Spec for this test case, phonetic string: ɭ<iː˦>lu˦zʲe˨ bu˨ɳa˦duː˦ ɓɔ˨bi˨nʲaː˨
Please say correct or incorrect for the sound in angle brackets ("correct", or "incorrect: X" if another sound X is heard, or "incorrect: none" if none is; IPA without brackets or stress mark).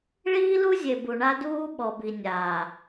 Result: correct